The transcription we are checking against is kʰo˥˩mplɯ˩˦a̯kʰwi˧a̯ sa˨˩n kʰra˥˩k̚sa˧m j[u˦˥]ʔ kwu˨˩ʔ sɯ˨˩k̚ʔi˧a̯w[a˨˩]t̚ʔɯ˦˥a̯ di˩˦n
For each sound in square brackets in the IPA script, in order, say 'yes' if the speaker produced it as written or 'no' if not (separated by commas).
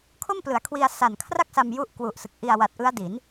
yes, yes